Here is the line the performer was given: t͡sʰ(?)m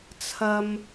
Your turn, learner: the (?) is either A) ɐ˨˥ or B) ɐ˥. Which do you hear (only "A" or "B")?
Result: B